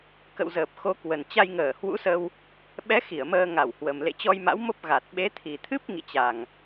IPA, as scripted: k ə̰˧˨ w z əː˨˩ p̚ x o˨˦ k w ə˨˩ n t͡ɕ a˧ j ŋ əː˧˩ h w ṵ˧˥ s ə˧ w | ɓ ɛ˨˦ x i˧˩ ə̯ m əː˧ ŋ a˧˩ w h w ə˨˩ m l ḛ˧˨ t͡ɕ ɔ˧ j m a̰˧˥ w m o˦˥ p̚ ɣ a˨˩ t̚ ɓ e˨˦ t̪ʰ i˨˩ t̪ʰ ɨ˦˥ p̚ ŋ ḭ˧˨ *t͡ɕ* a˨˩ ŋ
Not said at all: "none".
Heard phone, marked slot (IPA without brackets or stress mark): t͡ɕ